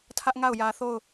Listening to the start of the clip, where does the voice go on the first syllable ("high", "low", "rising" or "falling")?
high